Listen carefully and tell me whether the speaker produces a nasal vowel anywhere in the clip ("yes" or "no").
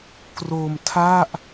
no